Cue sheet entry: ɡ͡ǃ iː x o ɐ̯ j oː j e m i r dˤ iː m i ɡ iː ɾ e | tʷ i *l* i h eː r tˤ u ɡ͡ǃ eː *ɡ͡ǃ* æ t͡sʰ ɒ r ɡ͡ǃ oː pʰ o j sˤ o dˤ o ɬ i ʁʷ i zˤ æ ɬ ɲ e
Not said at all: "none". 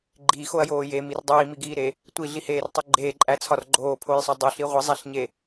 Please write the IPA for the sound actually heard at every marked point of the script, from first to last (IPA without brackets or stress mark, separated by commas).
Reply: ɮ, ǃʼ